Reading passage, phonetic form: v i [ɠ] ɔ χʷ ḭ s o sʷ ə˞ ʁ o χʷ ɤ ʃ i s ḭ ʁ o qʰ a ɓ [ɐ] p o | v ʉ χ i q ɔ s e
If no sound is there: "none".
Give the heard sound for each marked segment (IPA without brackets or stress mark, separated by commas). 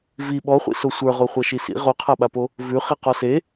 ɓ, a